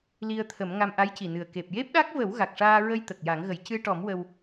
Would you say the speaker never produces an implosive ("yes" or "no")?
no